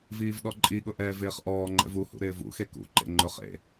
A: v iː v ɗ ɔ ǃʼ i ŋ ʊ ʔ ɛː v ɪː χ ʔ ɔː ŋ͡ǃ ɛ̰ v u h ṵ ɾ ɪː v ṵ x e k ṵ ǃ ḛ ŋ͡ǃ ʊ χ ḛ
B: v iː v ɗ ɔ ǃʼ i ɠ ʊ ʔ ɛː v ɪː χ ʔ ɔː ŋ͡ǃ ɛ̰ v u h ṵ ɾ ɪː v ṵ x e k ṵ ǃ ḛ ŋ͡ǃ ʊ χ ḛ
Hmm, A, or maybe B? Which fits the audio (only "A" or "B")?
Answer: B